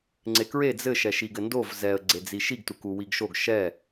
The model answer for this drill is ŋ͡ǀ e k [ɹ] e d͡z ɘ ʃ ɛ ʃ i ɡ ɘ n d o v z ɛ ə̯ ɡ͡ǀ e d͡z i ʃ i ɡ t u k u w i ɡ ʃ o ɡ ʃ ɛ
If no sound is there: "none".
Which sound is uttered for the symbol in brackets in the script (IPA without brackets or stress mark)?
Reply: ɹ